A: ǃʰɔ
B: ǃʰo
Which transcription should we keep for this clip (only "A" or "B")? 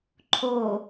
B